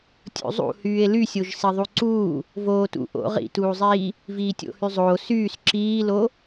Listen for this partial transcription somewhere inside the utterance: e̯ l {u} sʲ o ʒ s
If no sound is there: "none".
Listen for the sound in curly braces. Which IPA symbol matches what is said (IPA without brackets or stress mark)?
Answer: y